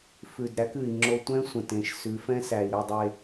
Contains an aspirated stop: no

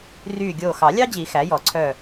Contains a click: yes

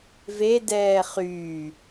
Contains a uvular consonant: yes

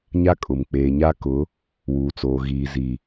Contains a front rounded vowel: no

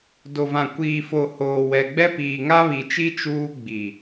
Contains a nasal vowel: yes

